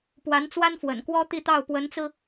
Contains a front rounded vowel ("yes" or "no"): no